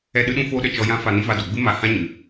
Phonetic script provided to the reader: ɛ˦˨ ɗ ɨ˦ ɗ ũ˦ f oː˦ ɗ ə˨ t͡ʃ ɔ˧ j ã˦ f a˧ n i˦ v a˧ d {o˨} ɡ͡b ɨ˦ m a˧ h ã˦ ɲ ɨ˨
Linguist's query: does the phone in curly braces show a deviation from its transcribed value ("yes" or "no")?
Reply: no